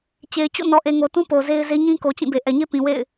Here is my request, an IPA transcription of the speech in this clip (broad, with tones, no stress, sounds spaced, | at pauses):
t͡ɕ e˨ ɪ̯ t͡ɕ o̰˦˨ n ɔ˨ ʔ e˨ ŋ o˨ t ũ˦ p o˨ z e˦ ɪ̯ z e˦ ɲ ĩ˦ k o˨ t͡ɕ ĩ˦˨ b e˨ ʔ ɛ˨ ɲ e˦ p ĩ˨ w ḛ˦˨ ɪ̯